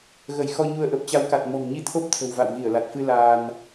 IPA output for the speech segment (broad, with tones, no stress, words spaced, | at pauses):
ɣə˧˩jxɔ˧ɲu˧ə̯ ʔə˨˩p̚t͡ɕa˨˦wka˨˩t̚ mɔ̤˨˩ŋɲi˧t̪ʰo˦˥p̚ t̪ʰə̤˨˩wva̰˧˨w ɣi˧˩ə̯la˨˩t̚fɨ˧ laː˧n